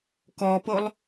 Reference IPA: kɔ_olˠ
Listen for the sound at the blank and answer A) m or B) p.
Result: B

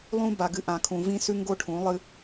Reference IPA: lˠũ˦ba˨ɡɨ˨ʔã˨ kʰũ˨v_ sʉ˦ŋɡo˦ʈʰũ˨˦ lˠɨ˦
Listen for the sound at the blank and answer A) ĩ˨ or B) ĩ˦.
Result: B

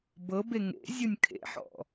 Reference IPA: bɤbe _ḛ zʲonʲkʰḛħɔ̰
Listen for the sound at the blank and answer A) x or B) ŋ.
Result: B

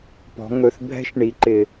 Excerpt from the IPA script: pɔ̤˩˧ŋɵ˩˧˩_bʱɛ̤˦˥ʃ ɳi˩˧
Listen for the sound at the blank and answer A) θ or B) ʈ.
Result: A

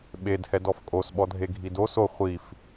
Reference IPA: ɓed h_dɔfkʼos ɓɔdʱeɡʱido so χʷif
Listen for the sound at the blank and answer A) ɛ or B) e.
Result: A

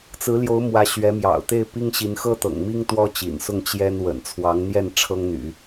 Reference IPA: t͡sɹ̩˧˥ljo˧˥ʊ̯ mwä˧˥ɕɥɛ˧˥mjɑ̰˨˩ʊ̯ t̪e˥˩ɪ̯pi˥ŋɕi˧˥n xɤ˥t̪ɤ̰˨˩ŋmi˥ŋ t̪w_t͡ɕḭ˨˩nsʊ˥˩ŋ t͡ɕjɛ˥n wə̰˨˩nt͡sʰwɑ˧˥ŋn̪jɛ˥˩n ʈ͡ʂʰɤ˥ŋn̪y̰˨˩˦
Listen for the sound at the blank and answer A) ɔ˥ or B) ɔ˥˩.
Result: A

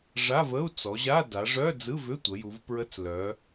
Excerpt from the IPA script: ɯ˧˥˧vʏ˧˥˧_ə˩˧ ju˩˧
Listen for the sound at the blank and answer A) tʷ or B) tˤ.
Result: A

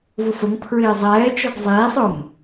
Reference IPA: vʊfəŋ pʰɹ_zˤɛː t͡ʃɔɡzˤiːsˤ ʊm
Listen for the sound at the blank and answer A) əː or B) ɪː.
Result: B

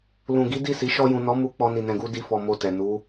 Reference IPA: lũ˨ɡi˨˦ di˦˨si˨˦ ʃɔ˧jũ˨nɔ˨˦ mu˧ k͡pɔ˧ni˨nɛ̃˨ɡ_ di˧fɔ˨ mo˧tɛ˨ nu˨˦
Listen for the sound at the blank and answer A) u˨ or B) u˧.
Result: B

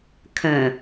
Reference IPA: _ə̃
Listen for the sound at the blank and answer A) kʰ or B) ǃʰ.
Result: A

